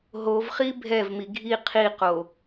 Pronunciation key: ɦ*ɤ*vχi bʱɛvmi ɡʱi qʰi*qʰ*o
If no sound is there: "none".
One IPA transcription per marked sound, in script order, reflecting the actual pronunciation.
o, q

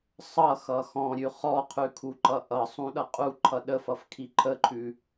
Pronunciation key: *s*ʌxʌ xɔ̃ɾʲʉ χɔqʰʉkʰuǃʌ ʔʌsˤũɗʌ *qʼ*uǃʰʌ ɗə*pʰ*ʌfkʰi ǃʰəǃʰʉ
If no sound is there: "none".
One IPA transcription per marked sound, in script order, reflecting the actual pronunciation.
sˤ, qʼ, f

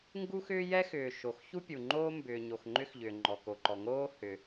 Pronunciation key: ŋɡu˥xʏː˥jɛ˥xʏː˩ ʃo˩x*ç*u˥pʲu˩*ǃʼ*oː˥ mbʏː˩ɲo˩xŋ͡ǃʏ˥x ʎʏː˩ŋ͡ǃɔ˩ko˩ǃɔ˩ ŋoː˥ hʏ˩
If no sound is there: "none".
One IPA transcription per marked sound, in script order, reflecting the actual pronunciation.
ç, ŋ͡ǃ

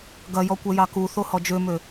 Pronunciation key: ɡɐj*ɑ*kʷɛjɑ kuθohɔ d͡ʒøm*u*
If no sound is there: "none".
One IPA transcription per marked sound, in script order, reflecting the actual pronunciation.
ɔ, ø

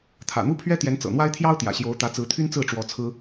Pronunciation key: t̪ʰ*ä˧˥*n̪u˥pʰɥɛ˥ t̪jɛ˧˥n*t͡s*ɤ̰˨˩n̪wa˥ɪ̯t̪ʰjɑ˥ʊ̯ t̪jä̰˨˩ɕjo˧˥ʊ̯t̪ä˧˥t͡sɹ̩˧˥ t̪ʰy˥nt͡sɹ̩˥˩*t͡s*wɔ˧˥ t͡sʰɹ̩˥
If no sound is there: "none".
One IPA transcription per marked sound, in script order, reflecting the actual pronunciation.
ä̰˨˩, t͡s, ʈ͡ʂ

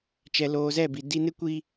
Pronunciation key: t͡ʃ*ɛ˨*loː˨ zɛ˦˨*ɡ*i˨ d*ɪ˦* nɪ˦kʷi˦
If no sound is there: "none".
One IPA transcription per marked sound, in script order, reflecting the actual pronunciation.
ɛ˨, b, i˦

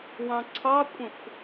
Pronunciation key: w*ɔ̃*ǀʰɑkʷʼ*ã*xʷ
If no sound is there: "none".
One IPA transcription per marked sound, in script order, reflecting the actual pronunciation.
ɑ̃, ə̃

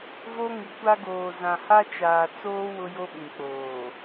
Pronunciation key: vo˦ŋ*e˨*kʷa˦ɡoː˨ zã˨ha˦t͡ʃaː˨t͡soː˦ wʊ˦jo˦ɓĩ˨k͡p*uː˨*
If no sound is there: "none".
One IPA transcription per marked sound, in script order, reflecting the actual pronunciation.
i˨, oː˨

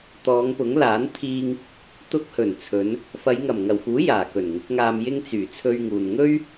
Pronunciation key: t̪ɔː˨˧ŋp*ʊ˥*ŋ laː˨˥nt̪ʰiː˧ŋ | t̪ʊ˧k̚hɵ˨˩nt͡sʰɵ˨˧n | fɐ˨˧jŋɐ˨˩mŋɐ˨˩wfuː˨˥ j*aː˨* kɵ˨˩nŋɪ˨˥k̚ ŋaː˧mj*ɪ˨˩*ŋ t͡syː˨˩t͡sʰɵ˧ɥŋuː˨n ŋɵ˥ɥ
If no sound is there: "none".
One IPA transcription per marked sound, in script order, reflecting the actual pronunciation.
ʊ˨˥, aː˨˩, ɪ˥

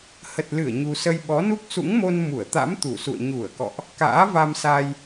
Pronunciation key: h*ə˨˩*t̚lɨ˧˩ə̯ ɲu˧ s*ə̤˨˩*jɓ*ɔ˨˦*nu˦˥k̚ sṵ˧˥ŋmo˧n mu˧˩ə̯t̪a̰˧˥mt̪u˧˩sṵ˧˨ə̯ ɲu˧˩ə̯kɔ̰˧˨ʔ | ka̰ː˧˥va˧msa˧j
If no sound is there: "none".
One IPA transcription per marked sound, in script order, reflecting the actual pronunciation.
ə˨˩, ə˧, ɔ˨˦

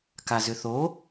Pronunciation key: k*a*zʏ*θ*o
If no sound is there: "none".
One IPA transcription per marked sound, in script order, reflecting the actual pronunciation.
a, θ

